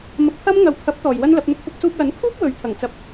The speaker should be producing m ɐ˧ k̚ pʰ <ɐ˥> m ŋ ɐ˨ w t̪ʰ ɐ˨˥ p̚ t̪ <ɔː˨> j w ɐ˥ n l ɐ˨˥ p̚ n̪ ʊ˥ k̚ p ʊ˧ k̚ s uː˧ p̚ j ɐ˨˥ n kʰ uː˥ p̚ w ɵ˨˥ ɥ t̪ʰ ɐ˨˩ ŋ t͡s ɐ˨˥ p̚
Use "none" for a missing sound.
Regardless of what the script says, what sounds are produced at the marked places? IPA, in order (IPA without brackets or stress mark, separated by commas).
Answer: ɐ˥, ɔː˨